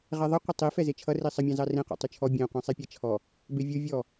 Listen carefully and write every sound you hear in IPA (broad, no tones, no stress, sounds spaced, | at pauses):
ʁ ɛ ðˤ ʌ qʷ ə tˤ i f ɛ z e t͡ʃʰ ʌ r i sˤ ə mʲ ɑ̃ z ɑ r ẽ q ɔ̰ tˤ y t͡ʃʰ ɔ bʲ ẽ qʷ ɛ̃ sˤ e pʲ ɛ t͡ʃʰ ɔ | b e vʲ u vʲ ɔ